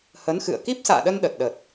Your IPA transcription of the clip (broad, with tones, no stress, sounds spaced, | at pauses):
h ə˨˦ n x ɨ̰˧˨ ə̯ k i˦˥ p̚ s a̰ː˧˨ ɗ ə˧ n ɗ ə˨˩ t̚ ɗ ə˨˩ t̚